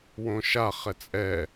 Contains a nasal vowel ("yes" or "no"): yes